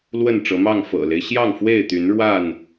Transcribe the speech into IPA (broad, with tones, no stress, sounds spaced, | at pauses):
l w ə˥˨ n ʈ͡ʂ ɤ˨˦ m ɑ˥˨ ŋ f ɤ̰˨˩ l e˦ ɪ̯ ɕ j ɑ˥˨ ŋ f w e˥˨ ɪ̯ t̪ y˨˦ n ɻ w a˥˨ n